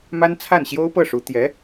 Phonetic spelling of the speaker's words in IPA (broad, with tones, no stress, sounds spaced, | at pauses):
m a˥ n t͡sʰ a˥˩ n ɕ j o˥ ʊ̯ p ɤ˥˩ ʂ u˧˥ t̪ j ɛ˧˥